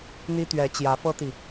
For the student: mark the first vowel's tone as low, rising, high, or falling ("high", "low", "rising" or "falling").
high